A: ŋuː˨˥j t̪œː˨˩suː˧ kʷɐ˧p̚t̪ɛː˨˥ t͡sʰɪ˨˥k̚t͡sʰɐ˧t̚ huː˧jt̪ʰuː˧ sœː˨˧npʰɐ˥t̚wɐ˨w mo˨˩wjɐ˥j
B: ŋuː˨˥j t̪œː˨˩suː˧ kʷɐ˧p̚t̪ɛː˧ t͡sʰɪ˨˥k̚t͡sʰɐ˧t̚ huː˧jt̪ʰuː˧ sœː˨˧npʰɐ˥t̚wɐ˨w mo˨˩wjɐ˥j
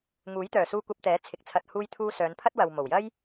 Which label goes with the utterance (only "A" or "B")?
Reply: A